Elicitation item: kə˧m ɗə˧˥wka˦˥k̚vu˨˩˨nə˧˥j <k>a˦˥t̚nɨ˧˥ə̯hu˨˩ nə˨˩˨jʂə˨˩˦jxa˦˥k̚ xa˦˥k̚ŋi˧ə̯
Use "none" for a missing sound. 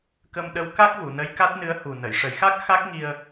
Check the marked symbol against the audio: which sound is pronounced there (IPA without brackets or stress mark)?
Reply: k